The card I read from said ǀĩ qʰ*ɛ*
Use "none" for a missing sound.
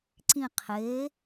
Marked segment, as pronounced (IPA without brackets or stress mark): e